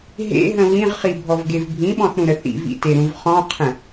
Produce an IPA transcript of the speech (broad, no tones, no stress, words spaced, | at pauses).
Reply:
ɦḛɦə̃ βĩʁχibʱɔvɡev bʱĩɓɔ̃θɾũɾə θḭvḭteɾũv χɔ̃qʰə̃